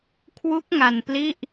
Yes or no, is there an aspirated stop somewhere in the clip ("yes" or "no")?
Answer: yes